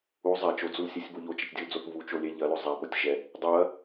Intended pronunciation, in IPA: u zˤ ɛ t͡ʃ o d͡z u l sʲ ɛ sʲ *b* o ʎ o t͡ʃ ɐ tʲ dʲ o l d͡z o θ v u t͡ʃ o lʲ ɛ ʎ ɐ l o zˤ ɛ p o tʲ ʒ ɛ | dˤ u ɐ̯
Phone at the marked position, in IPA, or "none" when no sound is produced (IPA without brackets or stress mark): b